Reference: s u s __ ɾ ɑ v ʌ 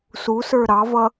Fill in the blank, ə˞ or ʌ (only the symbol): ə˞